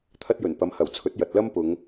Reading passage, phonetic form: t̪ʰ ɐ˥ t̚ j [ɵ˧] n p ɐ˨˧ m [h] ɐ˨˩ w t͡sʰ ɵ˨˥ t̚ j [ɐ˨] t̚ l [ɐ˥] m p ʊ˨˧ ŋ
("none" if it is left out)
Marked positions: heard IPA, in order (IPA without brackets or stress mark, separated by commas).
ɵ˨˩, h, ɐ˨, ɐ˥